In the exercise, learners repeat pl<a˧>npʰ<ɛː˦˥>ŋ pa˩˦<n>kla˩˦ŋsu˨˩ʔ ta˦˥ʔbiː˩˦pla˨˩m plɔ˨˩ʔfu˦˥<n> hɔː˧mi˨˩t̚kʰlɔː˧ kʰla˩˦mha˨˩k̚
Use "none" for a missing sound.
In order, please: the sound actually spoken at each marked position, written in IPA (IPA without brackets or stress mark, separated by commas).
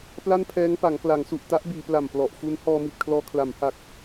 a˥˩, ɛː˦˥, ŋ, n